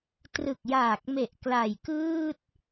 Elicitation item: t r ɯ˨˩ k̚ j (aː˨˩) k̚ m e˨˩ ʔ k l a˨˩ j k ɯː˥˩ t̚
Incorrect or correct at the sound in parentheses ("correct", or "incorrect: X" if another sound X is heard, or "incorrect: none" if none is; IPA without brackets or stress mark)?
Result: correct